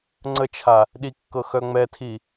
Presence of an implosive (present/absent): present